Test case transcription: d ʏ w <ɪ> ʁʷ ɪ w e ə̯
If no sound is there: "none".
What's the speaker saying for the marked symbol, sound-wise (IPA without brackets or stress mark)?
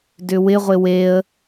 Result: ɪ